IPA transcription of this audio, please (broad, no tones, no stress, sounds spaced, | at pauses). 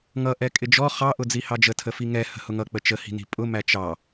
ŋ ʌ ʔ ɛ kʼ ɪ d͡ʒ ɔ χ ɑ ʔ ʊ d͡z i h ɑ d͡ʒ ə tʰ ə f i ŋ ɛ h ə̤ h ʊ ŋ ʌ k͡p ə t͡ʃ ə h i̤ n i̤ pʼ ʊ m æ t͡ʃ ɑ